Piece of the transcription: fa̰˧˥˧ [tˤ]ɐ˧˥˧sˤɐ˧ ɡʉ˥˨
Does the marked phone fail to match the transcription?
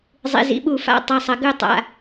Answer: no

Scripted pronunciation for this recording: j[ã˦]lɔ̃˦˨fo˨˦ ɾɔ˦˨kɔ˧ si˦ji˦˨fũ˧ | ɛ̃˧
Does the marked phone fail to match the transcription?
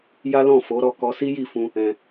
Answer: yes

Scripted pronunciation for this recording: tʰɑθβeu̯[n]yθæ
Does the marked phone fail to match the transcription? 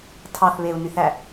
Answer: no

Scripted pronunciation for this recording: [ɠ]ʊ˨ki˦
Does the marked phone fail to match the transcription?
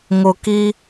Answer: yes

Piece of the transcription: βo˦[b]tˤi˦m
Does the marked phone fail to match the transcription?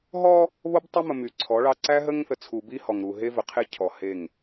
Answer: no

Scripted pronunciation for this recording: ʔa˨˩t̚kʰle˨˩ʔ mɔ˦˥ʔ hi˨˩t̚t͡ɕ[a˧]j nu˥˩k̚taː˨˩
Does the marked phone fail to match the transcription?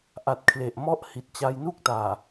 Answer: no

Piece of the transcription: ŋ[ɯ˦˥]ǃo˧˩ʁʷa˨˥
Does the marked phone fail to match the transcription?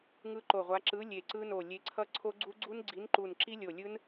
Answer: no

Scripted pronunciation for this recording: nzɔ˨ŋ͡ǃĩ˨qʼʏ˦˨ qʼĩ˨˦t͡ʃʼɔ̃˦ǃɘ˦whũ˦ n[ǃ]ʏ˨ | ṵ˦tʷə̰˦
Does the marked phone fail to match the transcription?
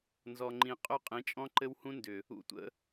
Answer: yes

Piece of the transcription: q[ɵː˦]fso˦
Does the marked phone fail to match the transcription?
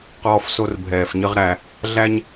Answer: yes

